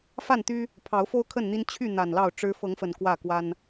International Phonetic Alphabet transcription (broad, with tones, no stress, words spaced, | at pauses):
fa˥˨nt̪y˦ | pʰɑ˨˦ʊ̯fo˦ʊ̯kʰə˥˨nn̪i˦n t͡ɕʰy˥˨n̪a˨˩n lɑ˥˨ʊ̯ʈ͡ʂɻ̩˦ fɤ˨˦ŋfə˨˩n kwä˥˨kwa˦n